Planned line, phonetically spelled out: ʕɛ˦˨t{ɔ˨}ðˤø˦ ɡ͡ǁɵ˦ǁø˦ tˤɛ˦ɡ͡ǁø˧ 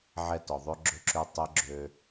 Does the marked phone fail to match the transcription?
no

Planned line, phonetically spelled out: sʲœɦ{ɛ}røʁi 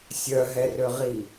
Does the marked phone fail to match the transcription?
no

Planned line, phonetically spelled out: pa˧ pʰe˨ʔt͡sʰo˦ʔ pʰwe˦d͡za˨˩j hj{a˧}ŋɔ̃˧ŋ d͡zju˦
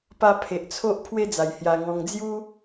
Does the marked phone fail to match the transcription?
no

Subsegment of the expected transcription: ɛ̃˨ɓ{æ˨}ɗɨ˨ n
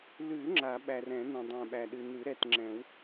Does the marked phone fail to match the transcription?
no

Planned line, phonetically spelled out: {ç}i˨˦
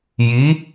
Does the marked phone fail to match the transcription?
yes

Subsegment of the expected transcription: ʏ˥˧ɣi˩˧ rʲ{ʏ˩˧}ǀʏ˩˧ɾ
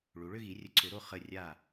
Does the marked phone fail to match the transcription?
yes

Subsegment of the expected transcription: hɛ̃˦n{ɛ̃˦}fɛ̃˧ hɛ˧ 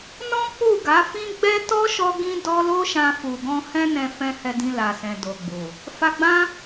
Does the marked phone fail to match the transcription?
yes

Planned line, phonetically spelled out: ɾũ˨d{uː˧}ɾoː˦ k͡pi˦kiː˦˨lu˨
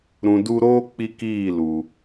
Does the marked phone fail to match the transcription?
yes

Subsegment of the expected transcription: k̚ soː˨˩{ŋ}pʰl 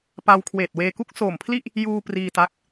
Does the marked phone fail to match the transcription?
yes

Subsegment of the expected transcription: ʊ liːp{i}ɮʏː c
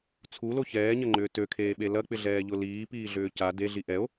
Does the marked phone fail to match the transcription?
yes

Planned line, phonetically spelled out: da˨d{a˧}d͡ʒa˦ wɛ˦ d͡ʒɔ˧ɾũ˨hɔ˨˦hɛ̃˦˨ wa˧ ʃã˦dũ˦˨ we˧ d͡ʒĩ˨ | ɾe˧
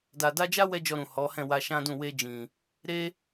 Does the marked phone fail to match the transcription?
no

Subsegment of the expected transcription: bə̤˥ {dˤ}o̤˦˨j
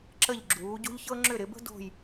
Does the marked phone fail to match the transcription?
yes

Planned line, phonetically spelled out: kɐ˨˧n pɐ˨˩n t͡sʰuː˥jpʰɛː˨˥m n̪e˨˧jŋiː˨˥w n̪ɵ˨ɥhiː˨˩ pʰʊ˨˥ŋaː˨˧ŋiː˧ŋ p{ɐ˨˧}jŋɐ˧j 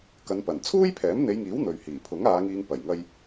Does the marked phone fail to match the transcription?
yes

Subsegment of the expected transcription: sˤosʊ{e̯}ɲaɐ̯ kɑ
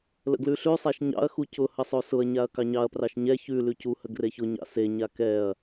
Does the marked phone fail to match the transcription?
yes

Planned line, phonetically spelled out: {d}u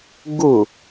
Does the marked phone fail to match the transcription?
yes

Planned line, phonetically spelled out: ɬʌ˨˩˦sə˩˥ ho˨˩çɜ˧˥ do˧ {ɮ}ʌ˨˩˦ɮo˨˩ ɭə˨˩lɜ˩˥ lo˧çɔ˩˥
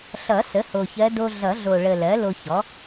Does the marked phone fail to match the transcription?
no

